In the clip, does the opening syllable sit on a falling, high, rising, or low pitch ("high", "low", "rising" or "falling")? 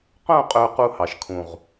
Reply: falling